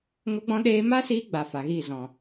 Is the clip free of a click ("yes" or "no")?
yes